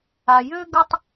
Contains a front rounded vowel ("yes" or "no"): yes